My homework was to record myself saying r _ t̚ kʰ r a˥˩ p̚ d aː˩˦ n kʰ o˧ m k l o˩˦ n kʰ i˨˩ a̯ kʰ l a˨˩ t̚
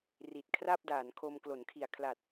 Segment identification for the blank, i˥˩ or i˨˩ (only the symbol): i˨˩